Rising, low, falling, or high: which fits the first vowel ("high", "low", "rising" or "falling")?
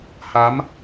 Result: rising